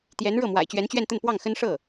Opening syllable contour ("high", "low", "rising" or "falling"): rising